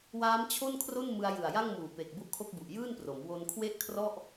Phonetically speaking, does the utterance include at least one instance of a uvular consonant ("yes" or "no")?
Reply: no